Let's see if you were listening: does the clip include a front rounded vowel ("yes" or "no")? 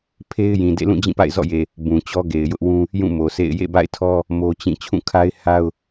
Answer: no